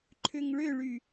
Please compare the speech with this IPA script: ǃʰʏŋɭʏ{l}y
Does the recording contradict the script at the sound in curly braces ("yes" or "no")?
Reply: yes